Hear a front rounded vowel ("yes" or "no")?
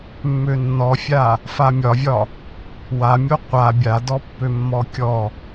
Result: yes